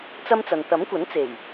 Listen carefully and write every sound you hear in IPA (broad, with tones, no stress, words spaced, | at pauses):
t͡sɐ˥mt͡sɐ˨n t̪ɐ˨˥mkʷɐ˨˥nt͡se˨˩j